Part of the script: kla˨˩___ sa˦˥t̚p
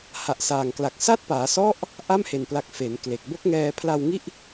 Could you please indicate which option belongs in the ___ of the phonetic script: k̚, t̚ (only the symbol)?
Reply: k̚